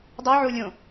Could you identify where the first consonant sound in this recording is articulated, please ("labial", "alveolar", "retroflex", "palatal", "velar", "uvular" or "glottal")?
alveolar